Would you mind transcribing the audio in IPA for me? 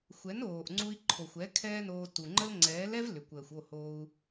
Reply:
xʷɛ˨˦noː˨ʔŋ͡ǀu˧i̯ ǃʰo˨xʷɛ˨˦ kʰɛː˦noː˧ tu˨ŋ͡ǃə˦l ŋ͡ǀɛː˨˦lɛ˦vlʏ˨kʷəː˨xʷ o˦˨ hoː˧u̯

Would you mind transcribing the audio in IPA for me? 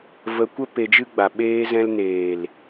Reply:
və˧ kʷə˦ pe˧d͡ʒɨ˦ɡ͡ba˨ ɓeː˧zɛ̃˧lneː˨l

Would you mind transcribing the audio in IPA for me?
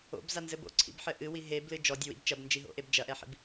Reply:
o̰bzanzɘb o̰ǀʰḭbħɘ ʔɨwi ɦeblɨ d͡ʒɔdʲɘwḭb t͡ʃɐbnd͡ʒiɦo̰ʔeb d͡ʒɐʔɛħḭb

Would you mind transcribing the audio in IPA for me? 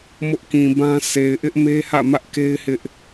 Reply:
mʊ˦ʔkĩ˨bã˦ se˨ɪ̯ʔɪ˦ʔme˦hä̰˦˨ mä˦ʔke˦ɪ̯ hɪ˦ʔ

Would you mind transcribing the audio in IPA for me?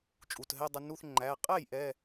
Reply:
t͡ʃʼu˩˧˩tɦɛ˧˥˧dˤʊ˧nu˧˥˧θ ŋ͡ǃæ˩˧˩ qʼɛ˥˩j ʔɛ˧˥˧

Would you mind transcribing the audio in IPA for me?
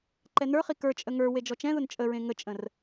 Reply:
ǃɛnə˞χi kə˞t͡ʃʼə ŋə˞ wed͡ʒɔt͡ʃɛ̃ðʊn t͡ʃʼəɹẽ ŋət͡ʃʼə̃r

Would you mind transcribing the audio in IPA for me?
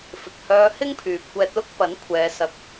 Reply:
fɪ˨k̚hœː˧hɪ˥ŋpʰyː˨p̚ kʷɛː˧t̚lʊ˥k̚pɐ˨˥nkʷʰɛː˨˧ sɐ˧k̚

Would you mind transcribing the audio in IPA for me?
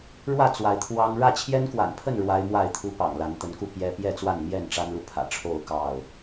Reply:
ɻwä˥˨ t͡swa˨˦ɪ̯t̪ʰwɑ˦ŋ ɻä˥˨ t͡ɕʰjɛ˦nkwa̰˨˩npʰə˥˨n ɻwa˦ɪ̯mwa˥˨ɪ̯t̪ʰu˦ pɑ̰˨˩ŋla˨˦nt̪ə˨˦nku˥˨ pjɛ˦ pjɛ˥˨t͡swa˥˨nmjɛ˥˨n ʈ͡ʂa˦nlu˨ pʰä̰˨˩ʈ͡ʂʰo˥˨ʊ̯ kɑ˥˨ʊ̯

